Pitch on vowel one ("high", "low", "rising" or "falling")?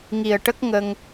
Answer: low